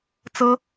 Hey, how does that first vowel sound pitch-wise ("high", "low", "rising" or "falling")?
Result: high